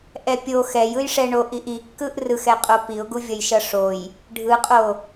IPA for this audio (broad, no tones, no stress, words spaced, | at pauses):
ʔɛpʲo xɛj ɯjʂɛɳoʔiʔ ikːɯʔ rɯxɛqʼo piʊ̯ɡuvʲʌjʃʌ ʂoj | ɖʱɯqʼo